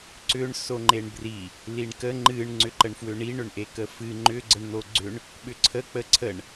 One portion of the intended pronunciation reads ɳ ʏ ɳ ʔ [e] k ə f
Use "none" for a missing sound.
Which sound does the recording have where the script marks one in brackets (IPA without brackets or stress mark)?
e